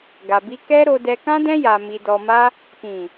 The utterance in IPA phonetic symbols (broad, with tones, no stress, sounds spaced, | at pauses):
ɡ a˨ b i˧ k ɛ˦ ɾ o˧ d ɛ˧ k ã˦ d ɛ̃˦ j a˧ m i˧ d ɔ˧ m a˦ | k ĩ˨